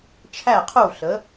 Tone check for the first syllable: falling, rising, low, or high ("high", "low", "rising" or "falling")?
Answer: falling